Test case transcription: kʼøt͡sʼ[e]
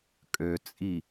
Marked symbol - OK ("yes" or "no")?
no